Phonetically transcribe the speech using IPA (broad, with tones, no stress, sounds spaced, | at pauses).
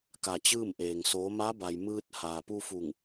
k a˧˩ t͡ɕ ɯː˥˨ m ʔ eː˩ ŋ s oː˩˧ m a˧˥ b a˩ j m ɯː˧ t̚ h aː˩ p u˧ f u˧˩ ŋ